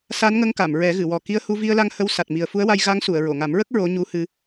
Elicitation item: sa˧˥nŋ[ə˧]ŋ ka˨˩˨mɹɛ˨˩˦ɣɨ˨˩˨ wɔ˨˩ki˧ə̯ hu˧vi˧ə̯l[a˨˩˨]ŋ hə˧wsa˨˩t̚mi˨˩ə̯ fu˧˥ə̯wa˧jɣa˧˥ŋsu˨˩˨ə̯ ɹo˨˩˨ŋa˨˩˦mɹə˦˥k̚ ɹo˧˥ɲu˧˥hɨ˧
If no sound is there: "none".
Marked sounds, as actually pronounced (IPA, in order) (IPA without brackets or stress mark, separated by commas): ə˧, a˧